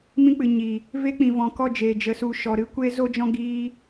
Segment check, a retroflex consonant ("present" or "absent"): absent